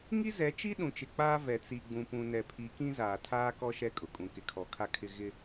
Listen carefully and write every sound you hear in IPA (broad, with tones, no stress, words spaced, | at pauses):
ŋi˦zɛ˨˦t͡ʃi˦ ɗũ˨t͡ʃɪ˨k͡paː˦ vɛ˨t͡si˨ɡ͡bũ˨pũ˨ nɛ˨pʰi˨˦kĩ˦ zaː˨tʰaː˦kɔ˦ ʃɛ˦kʼʊ˨kʼũ˨ kɪ˨kʰɔ˨kʰa˦kʰɪ˦ ɣɪ˦